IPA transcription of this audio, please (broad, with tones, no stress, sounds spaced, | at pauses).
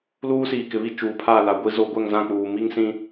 l uː˦ s iː˨ k ɪ˨ β i˦ t͡ʃ uː˨ pʰ aː˦˨ l a˨ ɡʷ i˦ z o˦ ɡʷ ɛ˦˨ ŋ z ã˦˨ k͡p uː˨ m i˦ ŋ s ĩ˦